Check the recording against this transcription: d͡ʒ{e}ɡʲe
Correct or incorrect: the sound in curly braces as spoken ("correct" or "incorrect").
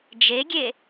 correct